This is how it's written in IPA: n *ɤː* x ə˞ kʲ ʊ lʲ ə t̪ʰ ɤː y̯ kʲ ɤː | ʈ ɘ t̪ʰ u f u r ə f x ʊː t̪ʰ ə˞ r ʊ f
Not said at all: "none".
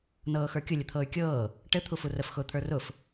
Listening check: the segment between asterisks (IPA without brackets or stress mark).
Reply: ɤː